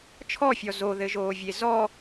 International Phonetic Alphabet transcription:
t͡ʃʰ ɔ fʲ ɔ z o ð ɘ ʒ oː vʲ e z ɔ

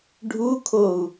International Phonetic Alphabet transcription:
ɖʱ u kʰ o u̯

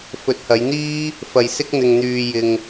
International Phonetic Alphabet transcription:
f ɵ˨˥ t̚ h ɐ˨˧ j n̪ iː˥ | f ɐ˧ j s ɪ˥ k̚ n̪ ɪ˧ ŋ n̪ yː˧ j ɪ˧ ŋ

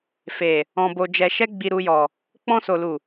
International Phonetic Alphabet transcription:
f e˨ | ɔ̃˧ b o˧ d͡ʒ ɛ˧ ʃ ɛ˦ ɡ͡b i˧ ɾ u˧ j ɔ˨ | k͡p ɔ̃˧ s o˨ l u˨

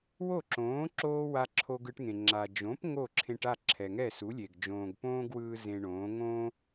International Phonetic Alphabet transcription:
w o˥˩ ǁ õː˩˥ ǁ oː˥ w a˧ ǁʰ o˧ ɡ ɯ˧ ʈ ŋ ẽ˩ ŋ͡ǁ a˩ d͡ʒ õ˩˥ p ŋ o˥˩ ǁʰ ẽ˧ ʈ a˥˩ ǁʰ ɛ˩ ŋ ɛ˥˩ s u˩˥ lʲ e˩ ɡ d͡ʒ õː˩ ɡ p õː˥ ɡ w ɯː˧ z ẽ˧ ɳ õː˩˥ ŋ õː˥

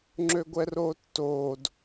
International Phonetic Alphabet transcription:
ŋ͡ǁ ø ɡʷ ɛ r oː tː oː d

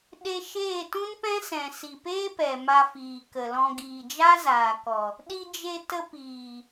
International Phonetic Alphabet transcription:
ɗ e˧ ʃ eː˦˨ t ũ˦ n p ɛ̃˦ s ɛ̃˨ s i˨ p eː˦ p ɛ˨ m a˧ f iː˨ k ə˨ l ɔ̃˧ ɡ iː˨ d͡ʒ a˦ z aː˨ k ɔ˨ | ɗ i˧ d͡ʒ e˧ t ə˧ p iː˨

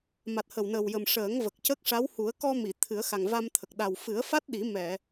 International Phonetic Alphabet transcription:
m a˨˩ t̚ h ə˨˩ w n ə˨˩ w j ə˨˩ m ʂ əː˨˩˦ ŋ v ə˨˩ k̚ c ə˦˥ k̚ ʂ a˧˥ w h u˨˩˦ ə̯ k ɔ˧ m i˨˩˨ t̪ʰ ɨ˨˩˦ ə̯ x a˨˩ ŋ v a˧ m t̪ʰ ə˨˩ k̚ ɗ a˨˩ w f ɨ˨˩˦ ə̯ f a˦˥ t̚ ɗ i˨˩˦ m ɛ˨˩˨

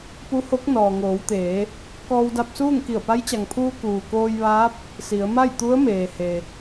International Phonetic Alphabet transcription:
p u˧˥ h o˧˥ k̚ n ɔː˩ ŋ oː˩˧ w t̪ eː˩˧ | k ɔː˧ w d a˧ p̚ s uː˥˨ ŋ k i˧˩ ə̯ p a˧˥ j t͡ɕ a˩ ŋ pʰ uː˧ k uː˩ k oː˧ j ʋ aː˧˥ p̚ | s i˩˧ ə̯ m a˥˨ j t̪ u˧˥ ə̯ m eː˩ h e˩

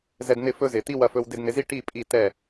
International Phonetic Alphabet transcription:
z ɛ˧ d n̪ ɪ˦˨ f ɵ˦ z ɪ˨ t̪ i˦ w ɐ˧ f ɵ˧ w d ɪ˧ d n̪ ɪ˨˦ z i˦ ʈ i˦˨ pʼ i˦˨ t ɛ˦˨

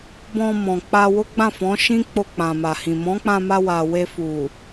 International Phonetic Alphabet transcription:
b ɔ̃˧ m ɔ̃˨ k͡p a˧ w o˦ ɡ͡b ã˦˨ f ɔ̃˨˦ ʃ ĩ˦ k͡p o˧ k͡p ã˨ m a˨ h ĩ˨ m ɔ̃˨˦ k͡p ã˧ m a˧ w a˨ w e˧ f u˨

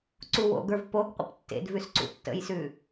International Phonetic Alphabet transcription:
ǀ u w o̰ ɡ ə˞ v p o ɡ qʷ ə̰ p tː ḛ d v ʉ s ǀ ṵ tː ə̰ j s ʉ

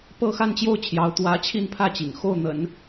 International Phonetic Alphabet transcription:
p ɤ˥˧ x a˥˧ n t͡ɕ j o˥˩ ʊ̯ t͡ɕʰ j ɑ˧˥ ʊ̯ t̪ w ä˧˥ t͡ɕʰ i˥˧ n pʰ ä˥˩ t͡ɕ ḭ˨˩ ŋ x o˥˩ ʊ̯ n̪ ə̰˨˩˦ n

